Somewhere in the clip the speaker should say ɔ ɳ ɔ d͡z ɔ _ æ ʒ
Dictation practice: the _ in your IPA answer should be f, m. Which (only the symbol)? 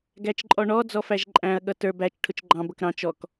f